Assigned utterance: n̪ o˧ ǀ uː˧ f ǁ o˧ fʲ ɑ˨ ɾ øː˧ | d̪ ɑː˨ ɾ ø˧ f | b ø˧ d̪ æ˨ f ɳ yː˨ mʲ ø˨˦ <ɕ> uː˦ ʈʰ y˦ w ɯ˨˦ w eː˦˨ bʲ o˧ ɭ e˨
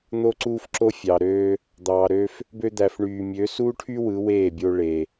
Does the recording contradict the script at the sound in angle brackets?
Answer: yes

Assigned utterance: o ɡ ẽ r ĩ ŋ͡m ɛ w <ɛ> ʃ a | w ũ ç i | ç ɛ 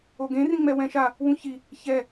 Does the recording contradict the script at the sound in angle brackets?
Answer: yes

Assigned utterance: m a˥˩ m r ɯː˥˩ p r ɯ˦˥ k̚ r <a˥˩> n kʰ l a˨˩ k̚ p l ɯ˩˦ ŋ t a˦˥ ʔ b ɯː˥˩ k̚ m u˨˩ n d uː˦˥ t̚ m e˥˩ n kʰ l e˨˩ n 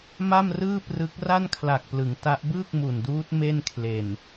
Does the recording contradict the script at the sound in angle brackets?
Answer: no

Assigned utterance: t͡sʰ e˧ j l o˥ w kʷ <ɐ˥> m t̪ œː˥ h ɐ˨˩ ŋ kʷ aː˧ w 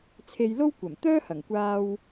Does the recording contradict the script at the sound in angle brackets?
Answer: yes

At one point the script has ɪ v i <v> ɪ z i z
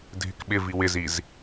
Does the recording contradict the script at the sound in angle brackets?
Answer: yes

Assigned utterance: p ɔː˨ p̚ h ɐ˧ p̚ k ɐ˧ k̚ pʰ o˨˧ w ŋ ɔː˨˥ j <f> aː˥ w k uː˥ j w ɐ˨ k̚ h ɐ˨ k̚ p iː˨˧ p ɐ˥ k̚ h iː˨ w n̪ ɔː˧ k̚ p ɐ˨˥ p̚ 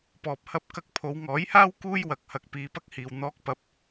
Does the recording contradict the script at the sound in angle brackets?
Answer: yes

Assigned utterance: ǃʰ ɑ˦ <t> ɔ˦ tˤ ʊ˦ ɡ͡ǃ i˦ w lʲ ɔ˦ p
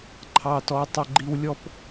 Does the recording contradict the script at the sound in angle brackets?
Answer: no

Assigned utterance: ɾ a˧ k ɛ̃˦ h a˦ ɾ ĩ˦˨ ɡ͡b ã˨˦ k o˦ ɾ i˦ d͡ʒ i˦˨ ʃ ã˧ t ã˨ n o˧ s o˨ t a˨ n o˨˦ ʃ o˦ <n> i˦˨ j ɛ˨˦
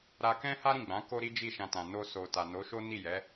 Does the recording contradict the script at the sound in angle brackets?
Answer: no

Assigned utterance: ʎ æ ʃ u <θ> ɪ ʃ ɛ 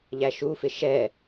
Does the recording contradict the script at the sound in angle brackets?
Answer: yes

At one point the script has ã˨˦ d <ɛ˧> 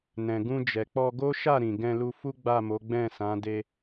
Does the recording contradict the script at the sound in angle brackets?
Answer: yes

